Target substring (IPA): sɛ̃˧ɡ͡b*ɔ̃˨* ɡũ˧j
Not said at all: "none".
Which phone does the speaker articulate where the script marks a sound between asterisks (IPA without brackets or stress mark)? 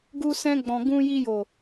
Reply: ɔ̃˨